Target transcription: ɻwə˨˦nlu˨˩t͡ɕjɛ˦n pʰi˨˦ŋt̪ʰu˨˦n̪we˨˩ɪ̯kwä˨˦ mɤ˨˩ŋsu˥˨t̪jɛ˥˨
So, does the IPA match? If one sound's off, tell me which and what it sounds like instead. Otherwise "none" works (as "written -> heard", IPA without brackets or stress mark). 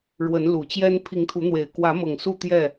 none